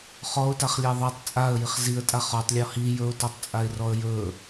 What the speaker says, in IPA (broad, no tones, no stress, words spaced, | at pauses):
χɔʊ̯taχlʲa ðˤatˤ t͡sʼaə̯jiχ ziə̯tʼa χɔtˤlʲɔ hi jɵʊ̯tɔtˤt͡sʼaɪ̯rɔə̯ jɵ